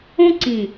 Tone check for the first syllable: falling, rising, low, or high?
high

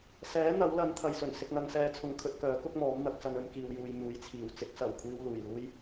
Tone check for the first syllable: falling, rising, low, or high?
rising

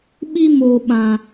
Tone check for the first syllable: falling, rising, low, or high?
high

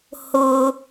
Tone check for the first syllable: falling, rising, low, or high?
high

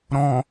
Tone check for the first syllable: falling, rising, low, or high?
low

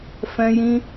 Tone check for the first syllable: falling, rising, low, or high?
high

